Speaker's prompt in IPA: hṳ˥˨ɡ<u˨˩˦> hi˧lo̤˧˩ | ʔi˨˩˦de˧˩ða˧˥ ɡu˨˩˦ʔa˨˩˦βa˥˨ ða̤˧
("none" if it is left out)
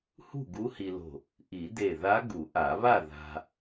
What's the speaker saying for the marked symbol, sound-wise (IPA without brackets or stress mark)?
u˧˥